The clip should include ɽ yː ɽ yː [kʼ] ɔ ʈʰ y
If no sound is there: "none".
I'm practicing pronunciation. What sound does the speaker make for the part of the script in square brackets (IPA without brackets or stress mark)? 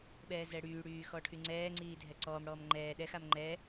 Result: x